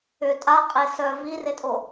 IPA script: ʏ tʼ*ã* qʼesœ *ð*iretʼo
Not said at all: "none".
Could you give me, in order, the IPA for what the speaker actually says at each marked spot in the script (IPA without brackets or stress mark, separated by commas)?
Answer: a, v